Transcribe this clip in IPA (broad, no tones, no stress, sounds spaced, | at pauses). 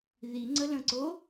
ð i ŋ͡ǀ ə l ə̃ ǀ o